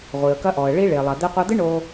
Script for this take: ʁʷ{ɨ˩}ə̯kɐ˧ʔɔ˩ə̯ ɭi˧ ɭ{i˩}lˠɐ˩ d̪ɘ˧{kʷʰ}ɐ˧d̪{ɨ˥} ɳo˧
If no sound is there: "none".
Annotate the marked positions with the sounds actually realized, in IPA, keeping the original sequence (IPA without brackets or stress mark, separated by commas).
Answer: i˩, e˩, qʷ, ɨ˥